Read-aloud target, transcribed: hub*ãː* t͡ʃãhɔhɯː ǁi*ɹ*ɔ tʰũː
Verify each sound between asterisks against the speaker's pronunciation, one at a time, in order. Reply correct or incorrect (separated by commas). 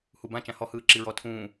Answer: incorrect, correct